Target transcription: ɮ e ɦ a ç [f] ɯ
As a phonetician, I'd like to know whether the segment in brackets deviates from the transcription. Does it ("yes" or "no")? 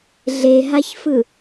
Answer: no